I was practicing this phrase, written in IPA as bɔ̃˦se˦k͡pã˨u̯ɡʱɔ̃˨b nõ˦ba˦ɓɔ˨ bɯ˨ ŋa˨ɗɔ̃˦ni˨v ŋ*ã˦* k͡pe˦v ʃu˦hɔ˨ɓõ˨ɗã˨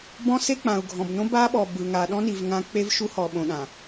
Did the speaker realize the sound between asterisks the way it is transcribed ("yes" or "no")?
yes